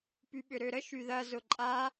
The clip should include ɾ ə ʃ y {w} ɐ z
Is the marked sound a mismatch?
yes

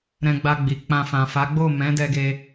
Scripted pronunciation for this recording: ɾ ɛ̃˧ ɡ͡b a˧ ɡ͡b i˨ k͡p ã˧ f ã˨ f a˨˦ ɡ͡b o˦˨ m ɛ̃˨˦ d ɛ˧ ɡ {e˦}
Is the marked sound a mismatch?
yes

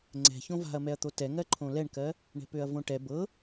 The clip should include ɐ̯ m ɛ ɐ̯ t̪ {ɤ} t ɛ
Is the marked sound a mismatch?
yes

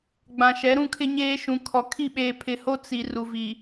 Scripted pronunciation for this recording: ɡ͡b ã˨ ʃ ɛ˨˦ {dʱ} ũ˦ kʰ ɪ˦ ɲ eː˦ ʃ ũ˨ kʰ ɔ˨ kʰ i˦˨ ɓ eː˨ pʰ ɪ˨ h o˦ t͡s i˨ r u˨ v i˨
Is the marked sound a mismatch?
yes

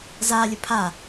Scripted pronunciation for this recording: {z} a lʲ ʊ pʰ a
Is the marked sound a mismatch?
no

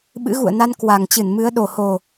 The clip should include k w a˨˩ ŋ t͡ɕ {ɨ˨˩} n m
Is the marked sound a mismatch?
yes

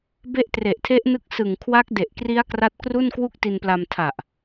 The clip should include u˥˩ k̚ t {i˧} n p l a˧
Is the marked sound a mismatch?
no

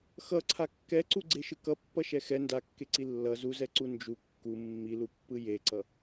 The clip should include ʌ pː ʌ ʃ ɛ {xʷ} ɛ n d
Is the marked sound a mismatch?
yes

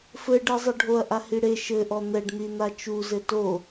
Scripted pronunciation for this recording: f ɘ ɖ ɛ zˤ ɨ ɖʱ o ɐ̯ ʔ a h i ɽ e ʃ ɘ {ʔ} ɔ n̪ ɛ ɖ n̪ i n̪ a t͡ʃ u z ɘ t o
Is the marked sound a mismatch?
no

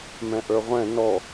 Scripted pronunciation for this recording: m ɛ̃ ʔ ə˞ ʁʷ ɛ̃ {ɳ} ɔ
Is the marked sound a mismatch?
yes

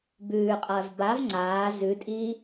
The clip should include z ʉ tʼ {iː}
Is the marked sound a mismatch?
no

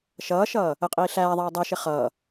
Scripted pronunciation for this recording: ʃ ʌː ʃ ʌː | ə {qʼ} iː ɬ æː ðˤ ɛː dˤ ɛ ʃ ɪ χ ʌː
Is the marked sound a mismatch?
no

